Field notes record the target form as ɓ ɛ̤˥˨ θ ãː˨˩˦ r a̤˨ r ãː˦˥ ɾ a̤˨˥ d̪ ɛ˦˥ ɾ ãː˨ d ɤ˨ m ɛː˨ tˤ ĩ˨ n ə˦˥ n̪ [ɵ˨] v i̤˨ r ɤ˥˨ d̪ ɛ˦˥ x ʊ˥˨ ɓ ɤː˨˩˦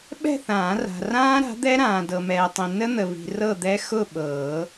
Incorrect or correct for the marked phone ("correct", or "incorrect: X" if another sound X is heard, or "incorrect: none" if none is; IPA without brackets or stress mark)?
incorrect: ə˨